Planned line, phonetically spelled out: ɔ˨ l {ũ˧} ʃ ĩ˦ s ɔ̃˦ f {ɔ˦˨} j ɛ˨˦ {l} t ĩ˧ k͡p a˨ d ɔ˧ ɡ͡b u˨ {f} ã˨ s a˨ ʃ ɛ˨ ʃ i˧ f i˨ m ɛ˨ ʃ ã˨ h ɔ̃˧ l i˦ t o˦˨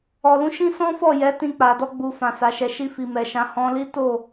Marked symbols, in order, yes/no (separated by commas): no, yes, no, yes